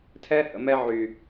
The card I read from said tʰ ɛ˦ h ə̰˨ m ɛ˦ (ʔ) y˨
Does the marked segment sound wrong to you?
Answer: yes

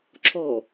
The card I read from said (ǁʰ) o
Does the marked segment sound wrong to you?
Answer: no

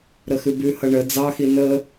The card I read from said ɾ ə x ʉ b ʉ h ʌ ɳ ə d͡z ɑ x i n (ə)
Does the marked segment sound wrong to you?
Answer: no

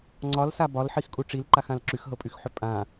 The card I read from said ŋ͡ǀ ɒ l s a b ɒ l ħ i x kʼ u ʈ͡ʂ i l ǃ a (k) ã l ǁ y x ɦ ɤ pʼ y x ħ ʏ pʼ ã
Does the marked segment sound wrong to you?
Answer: yes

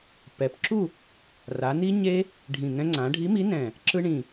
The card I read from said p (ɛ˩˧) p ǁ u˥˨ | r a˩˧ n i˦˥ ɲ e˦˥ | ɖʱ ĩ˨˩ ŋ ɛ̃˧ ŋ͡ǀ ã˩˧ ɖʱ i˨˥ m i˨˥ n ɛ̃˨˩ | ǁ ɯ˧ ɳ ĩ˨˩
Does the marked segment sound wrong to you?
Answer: no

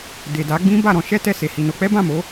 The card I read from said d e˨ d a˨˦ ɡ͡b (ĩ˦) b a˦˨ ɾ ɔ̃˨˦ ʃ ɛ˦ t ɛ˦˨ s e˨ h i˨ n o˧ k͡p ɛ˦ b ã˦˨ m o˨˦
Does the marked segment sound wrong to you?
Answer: no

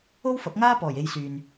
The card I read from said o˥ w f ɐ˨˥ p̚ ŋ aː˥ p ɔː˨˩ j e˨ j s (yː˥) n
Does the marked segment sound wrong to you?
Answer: yes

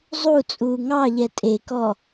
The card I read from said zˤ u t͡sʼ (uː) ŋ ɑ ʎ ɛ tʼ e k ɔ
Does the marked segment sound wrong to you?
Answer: no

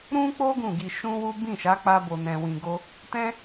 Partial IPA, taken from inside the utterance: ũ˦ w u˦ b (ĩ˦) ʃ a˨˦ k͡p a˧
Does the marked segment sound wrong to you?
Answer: yes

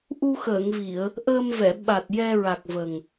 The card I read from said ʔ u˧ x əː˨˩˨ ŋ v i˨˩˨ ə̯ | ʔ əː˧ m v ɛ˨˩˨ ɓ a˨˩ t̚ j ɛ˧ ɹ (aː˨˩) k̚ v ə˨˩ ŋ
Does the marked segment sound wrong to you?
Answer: yes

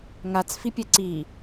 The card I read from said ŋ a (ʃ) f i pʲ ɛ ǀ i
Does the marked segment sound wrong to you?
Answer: yes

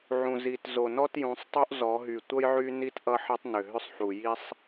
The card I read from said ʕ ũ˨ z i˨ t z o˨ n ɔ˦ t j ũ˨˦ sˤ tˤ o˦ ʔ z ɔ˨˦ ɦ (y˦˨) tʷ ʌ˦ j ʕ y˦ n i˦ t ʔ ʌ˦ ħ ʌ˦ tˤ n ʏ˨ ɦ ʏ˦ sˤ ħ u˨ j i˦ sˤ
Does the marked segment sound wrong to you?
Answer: yes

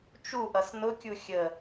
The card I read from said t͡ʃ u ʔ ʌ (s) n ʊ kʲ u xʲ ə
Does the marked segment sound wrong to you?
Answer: no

